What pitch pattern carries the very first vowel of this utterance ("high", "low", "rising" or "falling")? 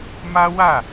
high